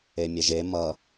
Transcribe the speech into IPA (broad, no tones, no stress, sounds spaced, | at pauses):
e mʲ e ʒ e m ʌ